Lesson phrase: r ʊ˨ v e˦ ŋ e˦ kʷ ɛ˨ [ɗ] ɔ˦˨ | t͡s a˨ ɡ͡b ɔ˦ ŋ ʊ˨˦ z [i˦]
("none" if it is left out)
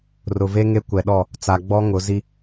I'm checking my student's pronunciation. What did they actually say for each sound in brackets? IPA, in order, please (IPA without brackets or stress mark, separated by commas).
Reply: ɗ, i˦